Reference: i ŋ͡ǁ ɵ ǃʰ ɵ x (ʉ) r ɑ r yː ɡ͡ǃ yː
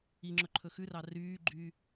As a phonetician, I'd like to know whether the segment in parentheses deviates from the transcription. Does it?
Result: no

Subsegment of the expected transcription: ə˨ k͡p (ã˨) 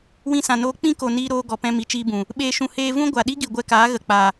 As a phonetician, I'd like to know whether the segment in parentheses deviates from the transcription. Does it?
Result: yes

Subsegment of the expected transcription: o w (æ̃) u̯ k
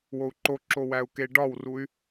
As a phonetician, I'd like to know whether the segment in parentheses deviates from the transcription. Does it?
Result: yes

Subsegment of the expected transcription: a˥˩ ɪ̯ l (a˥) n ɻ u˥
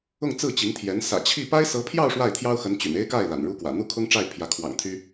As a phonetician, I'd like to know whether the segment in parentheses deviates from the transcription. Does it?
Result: yes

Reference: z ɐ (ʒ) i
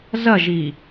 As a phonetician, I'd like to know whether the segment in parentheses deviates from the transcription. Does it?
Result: no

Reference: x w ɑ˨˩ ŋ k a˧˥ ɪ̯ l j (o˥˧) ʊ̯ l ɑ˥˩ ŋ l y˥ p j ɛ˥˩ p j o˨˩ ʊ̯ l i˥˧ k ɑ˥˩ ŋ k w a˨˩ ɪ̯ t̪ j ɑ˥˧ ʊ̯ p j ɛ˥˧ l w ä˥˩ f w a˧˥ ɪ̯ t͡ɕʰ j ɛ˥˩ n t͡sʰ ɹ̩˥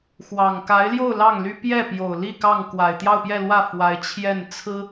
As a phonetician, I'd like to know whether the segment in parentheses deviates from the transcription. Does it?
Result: no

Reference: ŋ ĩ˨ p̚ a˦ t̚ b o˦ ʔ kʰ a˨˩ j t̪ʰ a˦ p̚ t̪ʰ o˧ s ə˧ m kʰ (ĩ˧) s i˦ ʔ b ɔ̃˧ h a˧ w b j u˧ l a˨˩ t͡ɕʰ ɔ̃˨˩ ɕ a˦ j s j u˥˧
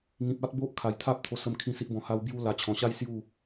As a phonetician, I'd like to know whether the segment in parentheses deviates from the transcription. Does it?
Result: no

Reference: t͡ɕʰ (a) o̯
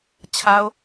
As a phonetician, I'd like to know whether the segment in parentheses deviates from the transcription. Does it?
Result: no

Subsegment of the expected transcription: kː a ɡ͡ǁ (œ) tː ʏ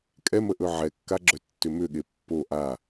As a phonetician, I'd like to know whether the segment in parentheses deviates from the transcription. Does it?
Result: no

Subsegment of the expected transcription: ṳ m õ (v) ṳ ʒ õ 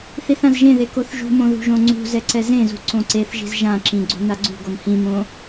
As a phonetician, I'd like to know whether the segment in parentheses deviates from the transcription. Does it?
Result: yes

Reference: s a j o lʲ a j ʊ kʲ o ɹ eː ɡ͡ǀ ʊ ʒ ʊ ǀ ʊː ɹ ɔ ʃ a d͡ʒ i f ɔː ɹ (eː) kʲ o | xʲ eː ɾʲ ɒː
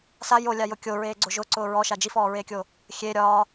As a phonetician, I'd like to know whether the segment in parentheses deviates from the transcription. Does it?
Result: no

